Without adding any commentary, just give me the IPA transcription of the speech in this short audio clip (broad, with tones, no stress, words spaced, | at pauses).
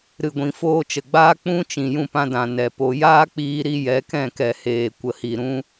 ɾɨ˨ɡʷĩ˨ foː˧t͡ʃə˨ɡ͡baː˦ k͡pũ˦ t͡ʃĩ˨jũ˦˨pã˧dã˨ nɛ˨po˧ jaː˦k͡piː˧ ɾi˧ jɛ˨˦ kɛ̃˦˨kɛ˨ heː˨ kʷə˨hi˨ ɾũ˦